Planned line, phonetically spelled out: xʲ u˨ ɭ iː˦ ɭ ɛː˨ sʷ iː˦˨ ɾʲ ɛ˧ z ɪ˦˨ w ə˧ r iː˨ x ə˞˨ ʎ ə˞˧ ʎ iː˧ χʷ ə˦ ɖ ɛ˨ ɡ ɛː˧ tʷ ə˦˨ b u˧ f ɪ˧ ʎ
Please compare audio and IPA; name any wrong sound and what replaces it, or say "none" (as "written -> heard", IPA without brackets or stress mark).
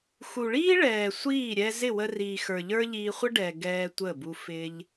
xʲ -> x